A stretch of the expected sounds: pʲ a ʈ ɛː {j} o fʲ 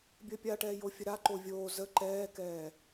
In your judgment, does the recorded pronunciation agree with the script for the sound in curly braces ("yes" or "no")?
yes